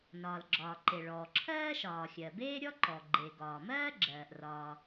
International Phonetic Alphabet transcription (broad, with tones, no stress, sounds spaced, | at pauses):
n ɒː˩ l ɡ͡ǁ ɒː˩ ǃ e˩ ɭ ɔː˩ ǁʰ ɜː˥ ʃ ɒː˩ xʲ ɜ˩ b eː˥ ɾʲ ɔ˥ ǃ ɔ˩ ɡ͡ǃ e˩ ɡ ɒː˩ m ɜː˥ ɡ͡ǁ ɜː˩ ʔ r ɒ˩